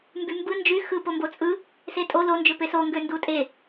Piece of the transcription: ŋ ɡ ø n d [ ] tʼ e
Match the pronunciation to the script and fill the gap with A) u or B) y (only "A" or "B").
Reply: A